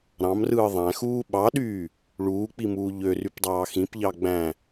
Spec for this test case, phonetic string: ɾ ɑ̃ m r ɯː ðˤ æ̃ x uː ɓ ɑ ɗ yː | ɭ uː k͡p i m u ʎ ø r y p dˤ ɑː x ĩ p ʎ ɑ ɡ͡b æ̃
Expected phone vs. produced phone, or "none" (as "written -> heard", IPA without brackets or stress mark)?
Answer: u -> uː